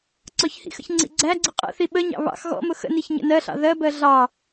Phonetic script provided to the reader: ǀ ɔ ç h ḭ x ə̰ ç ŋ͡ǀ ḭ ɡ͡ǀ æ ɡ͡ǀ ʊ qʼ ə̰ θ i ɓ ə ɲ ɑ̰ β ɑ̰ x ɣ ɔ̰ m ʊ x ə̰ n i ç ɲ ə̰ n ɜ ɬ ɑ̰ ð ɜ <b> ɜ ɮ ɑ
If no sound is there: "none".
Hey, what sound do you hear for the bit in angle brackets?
b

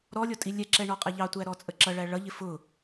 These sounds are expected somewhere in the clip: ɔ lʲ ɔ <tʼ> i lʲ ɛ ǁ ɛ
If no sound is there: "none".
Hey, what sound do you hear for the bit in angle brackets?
tʼ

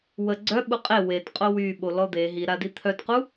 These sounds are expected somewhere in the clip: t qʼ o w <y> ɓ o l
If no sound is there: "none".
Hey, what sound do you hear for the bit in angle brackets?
y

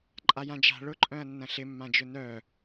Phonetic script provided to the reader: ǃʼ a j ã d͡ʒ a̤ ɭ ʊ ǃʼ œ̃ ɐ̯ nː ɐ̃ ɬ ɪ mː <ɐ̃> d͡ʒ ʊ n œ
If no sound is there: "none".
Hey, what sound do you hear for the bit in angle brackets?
ã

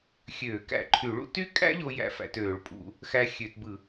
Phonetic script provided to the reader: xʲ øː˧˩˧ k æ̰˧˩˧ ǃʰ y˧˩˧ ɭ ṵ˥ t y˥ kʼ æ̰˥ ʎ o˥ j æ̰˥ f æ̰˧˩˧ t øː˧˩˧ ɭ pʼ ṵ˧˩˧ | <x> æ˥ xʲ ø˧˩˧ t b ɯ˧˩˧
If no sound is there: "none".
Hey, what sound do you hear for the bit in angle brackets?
x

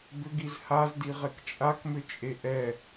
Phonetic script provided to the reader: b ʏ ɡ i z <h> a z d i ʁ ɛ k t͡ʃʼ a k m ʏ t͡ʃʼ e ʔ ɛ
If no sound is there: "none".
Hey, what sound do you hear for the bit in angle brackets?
h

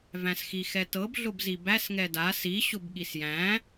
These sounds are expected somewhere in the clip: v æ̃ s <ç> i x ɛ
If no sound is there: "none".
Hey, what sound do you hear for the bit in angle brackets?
x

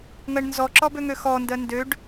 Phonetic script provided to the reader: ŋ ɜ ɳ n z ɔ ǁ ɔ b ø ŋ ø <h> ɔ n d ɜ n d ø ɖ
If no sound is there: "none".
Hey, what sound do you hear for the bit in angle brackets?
x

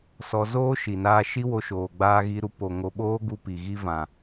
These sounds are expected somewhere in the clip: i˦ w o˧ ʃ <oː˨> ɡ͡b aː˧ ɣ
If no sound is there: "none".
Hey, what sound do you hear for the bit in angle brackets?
oː˨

